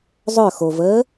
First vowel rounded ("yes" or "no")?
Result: yes